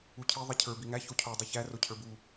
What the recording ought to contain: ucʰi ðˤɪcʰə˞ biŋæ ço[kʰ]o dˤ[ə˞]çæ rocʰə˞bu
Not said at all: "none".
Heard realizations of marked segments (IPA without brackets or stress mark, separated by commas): cʰ, ɐ